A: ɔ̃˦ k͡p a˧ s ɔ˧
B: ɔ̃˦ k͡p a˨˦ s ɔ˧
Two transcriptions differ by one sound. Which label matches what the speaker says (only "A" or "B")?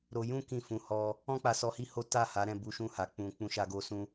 A